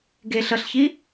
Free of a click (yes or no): yes